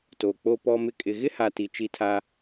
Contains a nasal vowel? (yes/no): no